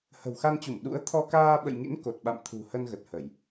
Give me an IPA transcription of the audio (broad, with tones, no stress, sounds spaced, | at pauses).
h ə̤˨˩ w x a˧ n t͡ɕ u˧˩ m ɗ ṵ˧˥ ə̯ t̪ʰ ɔ˧ k aː˧ ɓ ə̰˧˨ j ŋ ḭ˧˥ n k o˨˩ t̚ ɓ a̰˧˨ m t̪ʰ ṳ˨˩ h ə˧ n ɣ ə˨˩ t̚ h ə˧˩˨ j